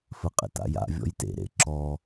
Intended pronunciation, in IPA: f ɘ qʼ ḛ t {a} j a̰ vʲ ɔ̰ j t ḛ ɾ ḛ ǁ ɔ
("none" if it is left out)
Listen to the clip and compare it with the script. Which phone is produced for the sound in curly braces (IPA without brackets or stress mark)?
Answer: a̰